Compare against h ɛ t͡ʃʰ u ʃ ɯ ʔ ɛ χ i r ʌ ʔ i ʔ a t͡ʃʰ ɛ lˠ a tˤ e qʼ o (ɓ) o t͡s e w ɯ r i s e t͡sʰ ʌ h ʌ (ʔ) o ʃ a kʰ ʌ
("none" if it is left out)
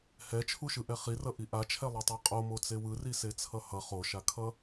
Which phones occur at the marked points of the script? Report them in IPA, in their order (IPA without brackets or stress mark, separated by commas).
m, χ